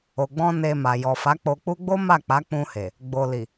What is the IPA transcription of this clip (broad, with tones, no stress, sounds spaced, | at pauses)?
o˨ ɡ͡b ɔ̃˧ n e˧ m a˨ j ɔ˨ f a˨˦ k͡p o˧ k͡p u˦ ɡ͡b o˦ m a˦˨ k͡p a˨˦ k͡p ũ˧ h e˨ | ɡ͡b o˨ l i˨